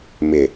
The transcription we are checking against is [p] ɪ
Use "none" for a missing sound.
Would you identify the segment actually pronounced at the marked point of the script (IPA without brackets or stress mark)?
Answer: m